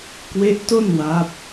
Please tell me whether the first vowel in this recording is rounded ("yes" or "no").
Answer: no